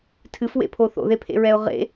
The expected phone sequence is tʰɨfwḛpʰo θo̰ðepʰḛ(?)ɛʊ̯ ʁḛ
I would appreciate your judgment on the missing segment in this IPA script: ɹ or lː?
ɹ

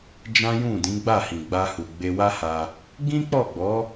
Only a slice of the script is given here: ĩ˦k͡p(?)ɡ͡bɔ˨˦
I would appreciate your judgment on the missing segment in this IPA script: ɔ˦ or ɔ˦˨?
ɔ˦˨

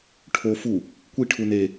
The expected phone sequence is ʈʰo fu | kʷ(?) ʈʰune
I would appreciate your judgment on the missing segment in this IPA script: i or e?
i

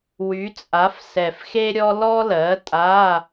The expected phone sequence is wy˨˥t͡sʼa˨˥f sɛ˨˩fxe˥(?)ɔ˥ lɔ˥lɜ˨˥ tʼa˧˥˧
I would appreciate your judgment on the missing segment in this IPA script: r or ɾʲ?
ɾʲ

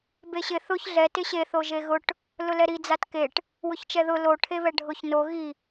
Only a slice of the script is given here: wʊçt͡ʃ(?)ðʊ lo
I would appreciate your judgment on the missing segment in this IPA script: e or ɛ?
ɛ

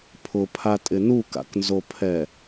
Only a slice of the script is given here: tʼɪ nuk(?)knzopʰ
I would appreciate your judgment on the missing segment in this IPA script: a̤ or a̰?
a̰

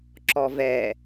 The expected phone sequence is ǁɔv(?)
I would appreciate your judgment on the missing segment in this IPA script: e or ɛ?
ɛ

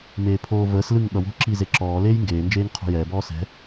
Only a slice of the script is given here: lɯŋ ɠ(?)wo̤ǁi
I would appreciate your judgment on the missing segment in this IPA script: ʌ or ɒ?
ʌ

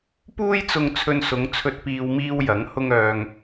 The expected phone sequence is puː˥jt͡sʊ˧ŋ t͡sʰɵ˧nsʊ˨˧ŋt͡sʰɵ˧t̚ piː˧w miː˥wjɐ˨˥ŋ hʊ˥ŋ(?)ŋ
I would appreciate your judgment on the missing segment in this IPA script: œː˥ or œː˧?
œː˧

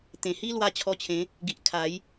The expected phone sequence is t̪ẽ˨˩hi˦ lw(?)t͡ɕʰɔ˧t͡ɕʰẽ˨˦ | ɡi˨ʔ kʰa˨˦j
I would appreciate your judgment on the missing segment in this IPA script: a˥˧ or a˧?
a˧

